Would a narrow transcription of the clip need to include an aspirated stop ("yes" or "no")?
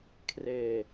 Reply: yes